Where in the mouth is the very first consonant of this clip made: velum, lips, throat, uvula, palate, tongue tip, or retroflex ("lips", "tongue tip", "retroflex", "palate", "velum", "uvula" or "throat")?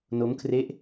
tongue tip